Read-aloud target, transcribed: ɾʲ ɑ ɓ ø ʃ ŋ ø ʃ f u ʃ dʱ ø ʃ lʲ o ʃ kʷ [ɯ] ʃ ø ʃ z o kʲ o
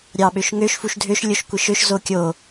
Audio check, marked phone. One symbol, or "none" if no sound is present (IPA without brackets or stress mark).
ɯ